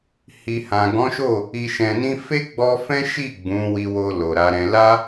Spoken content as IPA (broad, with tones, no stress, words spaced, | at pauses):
hi˨hã˨ɡɔ̃˨˦ʃo˦˨ | i˨ʃɛ̃˨nĩ˧ fe˦ɡ͡bɔ˧fɛ̃˦ ʃi˦˨ ɡ͡bũ˨˦wi˧wo˧ lo˨ɾa˨˦ɾɛ̃˧ la˦